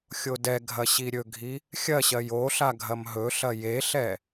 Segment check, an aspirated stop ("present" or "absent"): absent